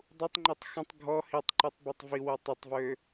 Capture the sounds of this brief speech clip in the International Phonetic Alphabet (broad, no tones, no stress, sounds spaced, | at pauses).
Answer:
dˤ u tˤ ŋ͡ǃ i tˤ x ə̃ tˤ ɡʱ ɔ h i tˤ ǃ y tˤ b o tˤ v i w o tˤ ɛ tˤ v ø